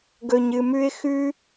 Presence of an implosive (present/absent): absent